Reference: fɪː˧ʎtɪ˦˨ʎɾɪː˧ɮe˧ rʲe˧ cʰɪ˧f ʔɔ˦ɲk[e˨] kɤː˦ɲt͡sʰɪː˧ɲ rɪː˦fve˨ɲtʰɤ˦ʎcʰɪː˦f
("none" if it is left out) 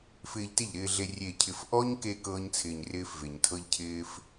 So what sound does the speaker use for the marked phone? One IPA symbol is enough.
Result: e˧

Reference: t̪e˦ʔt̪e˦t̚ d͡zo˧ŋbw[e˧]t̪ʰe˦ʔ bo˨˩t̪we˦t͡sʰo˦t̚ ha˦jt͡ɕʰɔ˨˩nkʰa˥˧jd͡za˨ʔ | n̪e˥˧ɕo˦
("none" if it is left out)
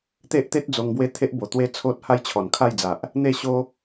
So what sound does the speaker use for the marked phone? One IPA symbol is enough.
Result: e˥˧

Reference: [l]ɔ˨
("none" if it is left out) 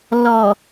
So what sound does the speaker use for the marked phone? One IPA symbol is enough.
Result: l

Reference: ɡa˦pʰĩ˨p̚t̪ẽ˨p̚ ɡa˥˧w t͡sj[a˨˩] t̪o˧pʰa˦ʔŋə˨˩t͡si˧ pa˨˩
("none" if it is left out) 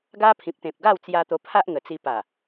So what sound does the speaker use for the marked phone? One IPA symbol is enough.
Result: a˧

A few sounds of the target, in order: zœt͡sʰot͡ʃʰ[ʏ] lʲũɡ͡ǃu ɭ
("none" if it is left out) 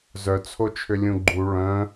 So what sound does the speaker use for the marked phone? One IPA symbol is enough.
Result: ʏ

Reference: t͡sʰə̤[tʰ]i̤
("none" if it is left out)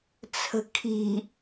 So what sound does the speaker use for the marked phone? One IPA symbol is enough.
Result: kʰ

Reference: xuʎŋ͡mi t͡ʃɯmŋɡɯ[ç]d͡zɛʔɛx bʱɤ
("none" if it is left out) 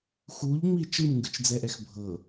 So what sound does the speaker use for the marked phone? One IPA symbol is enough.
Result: t͡ʃ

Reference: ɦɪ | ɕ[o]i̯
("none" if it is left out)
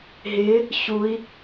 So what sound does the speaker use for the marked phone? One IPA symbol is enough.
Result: u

